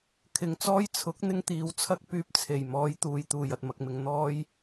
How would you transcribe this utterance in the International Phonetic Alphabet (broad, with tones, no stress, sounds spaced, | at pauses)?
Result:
kʰ ɪ˨ ŋ t͡s ɔː˥ j t͡sʰ ʊ˨˥ k̚ n̪ ɪ˥ ŋ t̪ iː˨˥ w t͡sʰ ɐ˥ k̚ p yː˧ p̚ t͡sʰ e˨˩ j m ɔː˨˧ j t̪ uː˨ j t̪ uː˨˩ j ɐ˧ t̚ m ɐ˧ k̚ m ɪ˧ ŋ n̪ ɔː˥ j